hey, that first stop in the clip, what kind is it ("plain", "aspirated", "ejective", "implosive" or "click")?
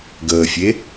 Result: plain